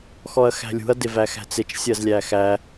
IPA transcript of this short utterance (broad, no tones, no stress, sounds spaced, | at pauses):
x ɔ ɐ̯ x æ̤ lʲ ṳ ɐ̯ d ɪ v æ x æ̤ t͡s ɪ t͡ʃ sʲ ɜ z lʲ æ x æ